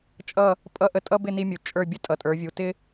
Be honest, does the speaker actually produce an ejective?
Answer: yes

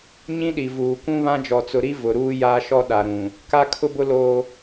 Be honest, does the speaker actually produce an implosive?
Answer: yes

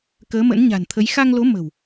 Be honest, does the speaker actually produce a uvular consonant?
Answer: no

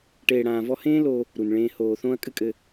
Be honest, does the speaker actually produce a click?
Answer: no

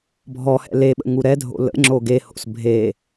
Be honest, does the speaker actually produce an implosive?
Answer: yes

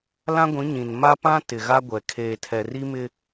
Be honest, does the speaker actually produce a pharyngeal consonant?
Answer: no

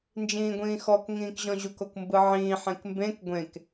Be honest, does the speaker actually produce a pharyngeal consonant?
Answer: yes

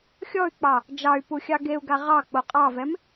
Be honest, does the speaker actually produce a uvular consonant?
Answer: yes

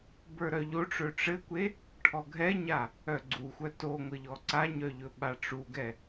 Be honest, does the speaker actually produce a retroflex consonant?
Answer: yes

